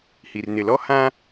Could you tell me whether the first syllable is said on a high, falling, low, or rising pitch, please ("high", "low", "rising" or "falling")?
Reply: low